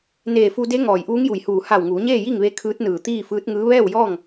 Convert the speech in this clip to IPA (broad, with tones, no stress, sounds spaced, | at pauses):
n eː˧˩ f u˧ d e˧˥ ŋ ɔː˧˩ j ʔ uː˧˥ ŋ j u˧˩ j h uː˧˩ h a˧˩ w ŋ uː˩˧ ɲ eː˥˨ j i˥˨ ŋ ʋ e˧˥ kʰ ɯː˧˥ t̚ n ɯː˧˩ t̪ iː˥˨ f ɯː˧˥ t̚ ŋ ɯː˧˥ ʋ ɛː˥˨ w j ɔː˥˨ ŋ